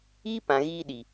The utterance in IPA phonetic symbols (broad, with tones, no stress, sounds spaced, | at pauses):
iː˦ p ã˨ ɣ iː˧ ɗ i˨